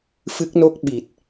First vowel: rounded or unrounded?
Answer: unrounded